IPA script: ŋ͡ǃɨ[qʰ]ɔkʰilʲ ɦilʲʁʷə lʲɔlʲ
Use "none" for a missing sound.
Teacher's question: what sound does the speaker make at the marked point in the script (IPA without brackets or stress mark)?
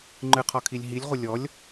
qʰ